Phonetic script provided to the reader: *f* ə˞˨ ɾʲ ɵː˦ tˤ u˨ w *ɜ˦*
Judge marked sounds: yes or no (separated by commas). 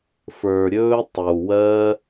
yes, yes